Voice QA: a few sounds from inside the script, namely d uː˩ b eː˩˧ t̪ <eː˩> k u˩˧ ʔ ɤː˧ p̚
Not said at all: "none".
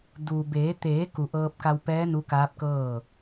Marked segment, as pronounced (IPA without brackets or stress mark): eː˩˧